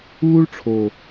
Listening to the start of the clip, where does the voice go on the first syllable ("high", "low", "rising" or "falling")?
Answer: high